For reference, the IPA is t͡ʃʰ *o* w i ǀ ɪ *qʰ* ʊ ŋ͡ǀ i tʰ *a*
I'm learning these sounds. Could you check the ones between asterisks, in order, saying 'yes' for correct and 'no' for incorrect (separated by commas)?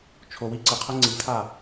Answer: yes, yes, yes